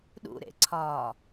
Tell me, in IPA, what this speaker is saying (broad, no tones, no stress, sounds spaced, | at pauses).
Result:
ɗ ṵ ɾ ḛ ǀʰ ɒː